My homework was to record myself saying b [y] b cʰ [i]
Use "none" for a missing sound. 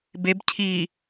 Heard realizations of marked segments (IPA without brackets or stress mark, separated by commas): e, i